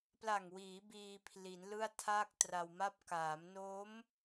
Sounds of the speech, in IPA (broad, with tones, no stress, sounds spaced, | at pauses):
p l a˨˩ ŋ w iː˩˦ b iː˧ pʰ l i˩˦ n l ɯ˥˩ a̯ tʰ aː˥˩ k̚ t r a˧ w m a˥˩ p̚ k aː˩˦ m n oː˦˥ m